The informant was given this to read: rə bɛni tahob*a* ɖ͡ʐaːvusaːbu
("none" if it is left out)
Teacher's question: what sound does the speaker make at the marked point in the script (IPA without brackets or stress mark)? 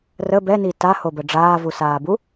ə